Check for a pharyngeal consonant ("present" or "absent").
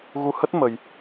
absent